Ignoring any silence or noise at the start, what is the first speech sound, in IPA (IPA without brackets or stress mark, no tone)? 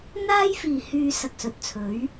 n̪